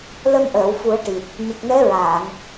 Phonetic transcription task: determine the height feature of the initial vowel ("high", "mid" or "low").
mid